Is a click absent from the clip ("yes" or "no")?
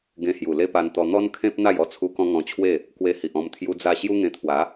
yes